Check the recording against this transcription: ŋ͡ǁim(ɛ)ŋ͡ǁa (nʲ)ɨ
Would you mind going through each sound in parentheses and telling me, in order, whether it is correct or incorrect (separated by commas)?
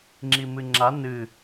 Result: incorrect, incorrect